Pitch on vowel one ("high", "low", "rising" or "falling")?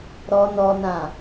high